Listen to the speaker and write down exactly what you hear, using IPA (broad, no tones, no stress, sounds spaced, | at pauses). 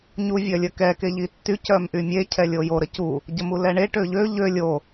ɲ u vʲ œ lʲ ə k ɛ k e ʎ i tː y c œ m ʔ y mʲ e cʰ ɛ lʲ o j o ɾ ə c u | ɟ ə m u l ɛ ɳ e ʈ ø ʎ ø ʎ ø lʲ o